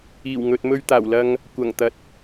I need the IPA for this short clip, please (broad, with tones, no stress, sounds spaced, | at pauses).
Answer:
iː˨˩ w ŋ ɵ˨ t̚ m ɵ˧ ɥ t̪ aː˨˩ w l ɐ˧ ŋ | kʷ ɐ˨˩ ŋ t̪ ɐ˨ t̚